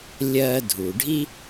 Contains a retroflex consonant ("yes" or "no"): yes